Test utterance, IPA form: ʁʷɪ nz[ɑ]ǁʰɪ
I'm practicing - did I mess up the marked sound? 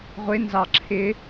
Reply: no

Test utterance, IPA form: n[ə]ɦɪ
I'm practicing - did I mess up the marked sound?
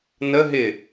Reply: no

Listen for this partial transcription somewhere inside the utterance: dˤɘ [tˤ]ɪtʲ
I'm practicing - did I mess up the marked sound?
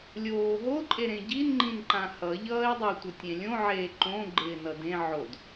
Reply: yes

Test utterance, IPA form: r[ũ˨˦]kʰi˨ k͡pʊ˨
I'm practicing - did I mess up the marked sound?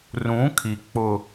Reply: no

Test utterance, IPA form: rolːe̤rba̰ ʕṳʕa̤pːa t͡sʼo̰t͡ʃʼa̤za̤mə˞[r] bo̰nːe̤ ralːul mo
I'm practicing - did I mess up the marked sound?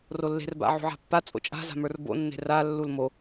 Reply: no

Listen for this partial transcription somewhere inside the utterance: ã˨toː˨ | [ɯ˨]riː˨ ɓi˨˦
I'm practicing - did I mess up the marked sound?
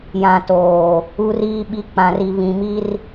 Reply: yes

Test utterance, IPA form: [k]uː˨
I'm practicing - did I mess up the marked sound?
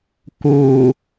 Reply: no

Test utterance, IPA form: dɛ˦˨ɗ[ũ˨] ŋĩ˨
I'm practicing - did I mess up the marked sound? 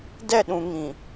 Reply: no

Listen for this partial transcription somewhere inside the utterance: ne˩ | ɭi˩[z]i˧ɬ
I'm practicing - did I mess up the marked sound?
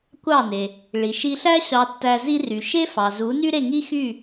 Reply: yes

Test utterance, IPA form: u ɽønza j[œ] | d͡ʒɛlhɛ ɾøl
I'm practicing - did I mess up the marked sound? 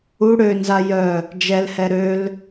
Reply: no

